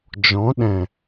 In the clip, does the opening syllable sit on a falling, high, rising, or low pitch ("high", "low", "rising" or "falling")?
rising